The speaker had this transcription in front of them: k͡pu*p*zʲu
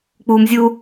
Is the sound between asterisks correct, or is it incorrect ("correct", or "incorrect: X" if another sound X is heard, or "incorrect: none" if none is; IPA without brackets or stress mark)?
incorrect: m